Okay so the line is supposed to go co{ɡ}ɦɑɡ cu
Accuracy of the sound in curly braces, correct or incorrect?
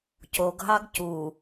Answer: correct